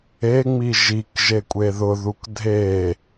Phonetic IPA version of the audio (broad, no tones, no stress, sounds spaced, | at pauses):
e ŋ͡m i ʒ i k ʒ e kʷʼ e ð ʊ ð u k dʱ e